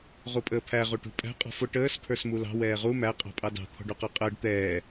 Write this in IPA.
ʁ u pʼ əː pʰ æ ʁ u ʈ ṳ pʼ æ̤ qʼ ɔ̤ f ʊ ʈ əː s pʰ ə˞ s m u l ɑ̤ w ɛː ʁ u m æ qʼ ɑ̤ pʼ ɑ d ɑ̤ t̪ʰ ɔ̤ ɖ u q ə˞ qʼ əː ɖ t̪ ɛː

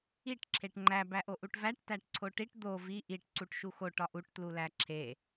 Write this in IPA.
i ʈ ǁʰ e ʈ ŋ͡ǃ æ b æ ʔ o ʔ u ʈ v æ ʈ t æ ʈ ǀʰ o ʈ i ʈ d̪ o v i ʔ i ʈ ǀ u ʈ ʃ u x o ʈ ɒ ʔ u ʈ t l u l æ ǁʰ e

